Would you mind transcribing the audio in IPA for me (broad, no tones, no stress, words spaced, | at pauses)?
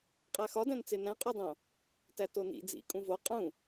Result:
qʼæxɒdæ̃nt͡se næ̃qʼudˤõ | tætonḭ d͡zḭ kʼũvo qʼũ